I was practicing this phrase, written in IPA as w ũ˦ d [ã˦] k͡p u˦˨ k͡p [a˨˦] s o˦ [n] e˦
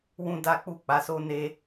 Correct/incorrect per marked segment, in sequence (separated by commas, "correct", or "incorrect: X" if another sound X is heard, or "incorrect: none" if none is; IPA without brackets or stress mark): incorrect: a˦, correct, correct